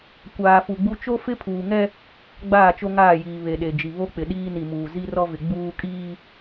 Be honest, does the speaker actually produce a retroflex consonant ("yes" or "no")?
no